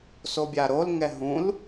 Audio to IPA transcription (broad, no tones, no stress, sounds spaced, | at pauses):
s o bʲ a ɾ o l ŋ ɛ ɦ ũ l